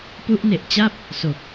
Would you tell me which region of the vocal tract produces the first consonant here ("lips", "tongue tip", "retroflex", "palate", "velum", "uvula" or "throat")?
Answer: lips